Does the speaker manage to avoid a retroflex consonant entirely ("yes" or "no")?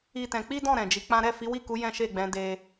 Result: yes